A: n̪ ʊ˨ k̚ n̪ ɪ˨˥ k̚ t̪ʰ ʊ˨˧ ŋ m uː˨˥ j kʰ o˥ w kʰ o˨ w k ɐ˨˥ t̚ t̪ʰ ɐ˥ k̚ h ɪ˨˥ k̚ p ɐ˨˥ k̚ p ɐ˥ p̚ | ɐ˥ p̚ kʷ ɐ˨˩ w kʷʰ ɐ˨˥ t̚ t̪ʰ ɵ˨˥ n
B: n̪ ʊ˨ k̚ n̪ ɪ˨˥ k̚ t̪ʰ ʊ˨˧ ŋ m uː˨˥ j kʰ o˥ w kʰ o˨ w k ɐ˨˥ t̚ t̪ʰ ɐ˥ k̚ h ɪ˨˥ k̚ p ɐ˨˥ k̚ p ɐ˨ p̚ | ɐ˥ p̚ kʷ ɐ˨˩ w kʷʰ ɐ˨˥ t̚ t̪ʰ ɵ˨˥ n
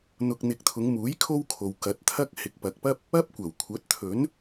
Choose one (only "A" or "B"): A